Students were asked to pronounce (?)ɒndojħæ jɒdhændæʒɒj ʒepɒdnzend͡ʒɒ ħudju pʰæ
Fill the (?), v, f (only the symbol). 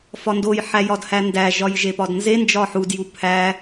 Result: f